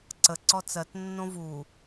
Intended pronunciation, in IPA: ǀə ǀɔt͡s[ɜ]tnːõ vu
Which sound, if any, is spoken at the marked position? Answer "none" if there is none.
ɜ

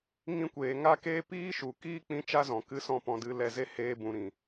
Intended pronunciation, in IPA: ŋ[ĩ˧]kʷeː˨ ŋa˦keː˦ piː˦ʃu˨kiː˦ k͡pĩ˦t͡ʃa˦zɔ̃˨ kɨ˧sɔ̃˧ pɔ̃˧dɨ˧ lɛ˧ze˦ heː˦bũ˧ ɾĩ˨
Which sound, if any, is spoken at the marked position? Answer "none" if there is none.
ĩ˧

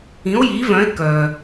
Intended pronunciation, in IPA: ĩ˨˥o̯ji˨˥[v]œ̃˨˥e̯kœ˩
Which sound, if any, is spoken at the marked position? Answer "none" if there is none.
v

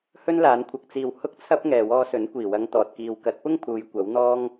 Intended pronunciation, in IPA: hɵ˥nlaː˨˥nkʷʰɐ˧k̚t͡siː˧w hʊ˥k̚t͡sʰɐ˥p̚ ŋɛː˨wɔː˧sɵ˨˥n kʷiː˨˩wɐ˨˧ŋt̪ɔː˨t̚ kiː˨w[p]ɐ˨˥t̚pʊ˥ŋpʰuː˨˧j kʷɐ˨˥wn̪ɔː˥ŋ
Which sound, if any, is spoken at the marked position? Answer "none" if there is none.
k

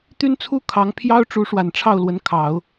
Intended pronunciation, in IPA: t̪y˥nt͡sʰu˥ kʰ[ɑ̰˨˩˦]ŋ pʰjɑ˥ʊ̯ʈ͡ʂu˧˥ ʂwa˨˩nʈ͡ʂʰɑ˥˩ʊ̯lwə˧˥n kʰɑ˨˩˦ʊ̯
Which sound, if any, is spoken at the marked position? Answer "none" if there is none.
ɑ˧˥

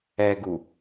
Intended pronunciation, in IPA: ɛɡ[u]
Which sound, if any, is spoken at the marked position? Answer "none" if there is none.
u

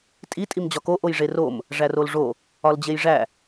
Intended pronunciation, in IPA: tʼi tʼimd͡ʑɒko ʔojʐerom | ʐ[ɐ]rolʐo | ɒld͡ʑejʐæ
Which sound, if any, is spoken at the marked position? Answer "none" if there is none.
æ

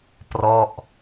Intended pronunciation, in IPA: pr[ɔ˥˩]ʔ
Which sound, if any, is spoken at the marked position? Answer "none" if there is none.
ɔ˥˩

